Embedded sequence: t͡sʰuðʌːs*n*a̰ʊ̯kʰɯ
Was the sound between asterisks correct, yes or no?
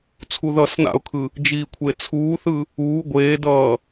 yes